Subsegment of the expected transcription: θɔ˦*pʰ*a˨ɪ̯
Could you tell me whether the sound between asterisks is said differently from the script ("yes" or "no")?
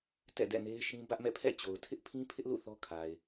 yes